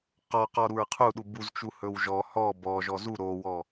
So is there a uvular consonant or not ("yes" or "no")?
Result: yes